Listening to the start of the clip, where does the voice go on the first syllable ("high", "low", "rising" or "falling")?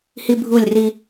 high